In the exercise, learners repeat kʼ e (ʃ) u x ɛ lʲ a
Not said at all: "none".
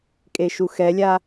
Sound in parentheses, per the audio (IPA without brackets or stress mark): ʃ